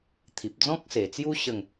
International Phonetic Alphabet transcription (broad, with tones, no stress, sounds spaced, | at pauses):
t̪ʰ i˨ p̚ d͡z ɔ̃˦ k̚ s e˨˩ t͡s j u˦ ɕ ə˥˧ ŋ